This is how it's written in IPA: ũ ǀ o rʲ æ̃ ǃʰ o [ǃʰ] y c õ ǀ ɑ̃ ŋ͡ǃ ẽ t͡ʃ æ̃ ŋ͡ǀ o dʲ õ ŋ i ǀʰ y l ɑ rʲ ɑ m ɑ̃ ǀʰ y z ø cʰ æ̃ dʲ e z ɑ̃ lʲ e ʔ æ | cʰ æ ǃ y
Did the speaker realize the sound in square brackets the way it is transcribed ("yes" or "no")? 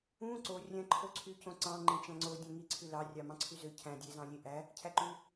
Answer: no